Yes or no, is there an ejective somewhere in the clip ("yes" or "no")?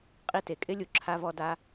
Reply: yes